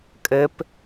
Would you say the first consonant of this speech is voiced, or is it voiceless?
voiceless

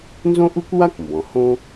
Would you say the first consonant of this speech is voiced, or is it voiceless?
voiced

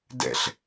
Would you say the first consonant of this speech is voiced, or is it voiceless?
voiced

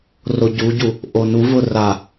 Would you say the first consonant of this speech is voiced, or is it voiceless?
voiced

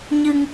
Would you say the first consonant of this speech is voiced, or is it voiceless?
voiced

